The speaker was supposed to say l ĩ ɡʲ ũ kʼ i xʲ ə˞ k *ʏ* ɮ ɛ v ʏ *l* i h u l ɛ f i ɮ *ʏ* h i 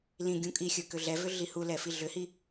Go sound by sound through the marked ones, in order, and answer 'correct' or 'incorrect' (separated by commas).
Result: correct, incorrect, correct